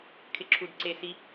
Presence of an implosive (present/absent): absent